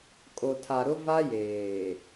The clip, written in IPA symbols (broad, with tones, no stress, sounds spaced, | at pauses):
kʼ o˨ tʰ a˨ ɾ ʊ˦ v a˦ j eː˨